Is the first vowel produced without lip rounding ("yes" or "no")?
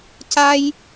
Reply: yes